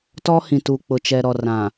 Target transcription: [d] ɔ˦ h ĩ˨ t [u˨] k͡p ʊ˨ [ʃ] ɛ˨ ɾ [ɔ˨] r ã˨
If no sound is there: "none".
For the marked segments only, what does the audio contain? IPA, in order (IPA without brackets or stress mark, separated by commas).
t, u˨, t͡ʃ, ɔ˨